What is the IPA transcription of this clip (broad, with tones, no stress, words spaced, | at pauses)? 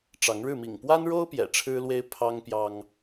ʈ͡ʂɑ˨˦ŋɻɻ̩˥˨ mḭ˨˩ŋpwa˦nɻo˦ʊ̯ pjɛ̰˨˩ʈ͡ʂʰɻ̩˦lwe˦ɪ̯ pʰɑ˦ŋpjɑ˦ŋ